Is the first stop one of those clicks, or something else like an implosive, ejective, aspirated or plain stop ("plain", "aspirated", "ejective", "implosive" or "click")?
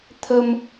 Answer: aspirated